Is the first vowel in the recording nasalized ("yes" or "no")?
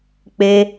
no